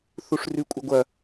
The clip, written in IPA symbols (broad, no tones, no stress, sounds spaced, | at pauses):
θ u ʂ r ʉ kʷʼ ɐ ɡʷ ɐ